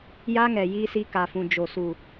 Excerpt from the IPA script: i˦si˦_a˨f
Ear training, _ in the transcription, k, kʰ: k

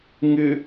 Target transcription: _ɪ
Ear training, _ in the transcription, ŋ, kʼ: ŋ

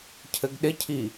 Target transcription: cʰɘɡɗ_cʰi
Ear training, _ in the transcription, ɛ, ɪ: ɪ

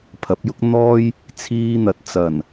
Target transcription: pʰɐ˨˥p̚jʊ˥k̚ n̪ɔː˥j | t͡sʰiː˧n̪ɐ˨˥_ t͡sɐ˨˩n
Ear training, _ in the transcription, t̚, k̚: t̚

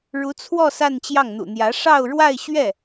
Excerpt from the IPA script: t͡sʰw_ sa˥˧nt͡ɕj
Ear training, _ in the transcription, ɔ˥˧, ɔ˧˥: ɔ˥˧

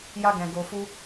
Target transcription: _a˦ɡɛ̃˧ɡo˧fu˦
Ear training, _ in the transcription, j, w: j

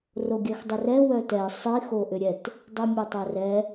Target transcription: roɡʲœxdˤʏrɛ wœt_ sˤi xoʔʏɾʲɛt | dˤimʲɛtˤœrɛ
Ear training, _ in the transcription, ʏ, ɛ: ɛ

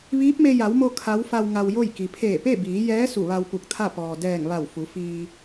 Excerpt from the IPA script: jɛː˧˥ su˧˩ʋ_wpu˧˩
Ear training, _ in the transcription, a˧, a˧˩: a˧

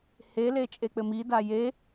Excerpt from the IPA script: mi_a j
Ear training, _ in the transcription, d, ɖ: d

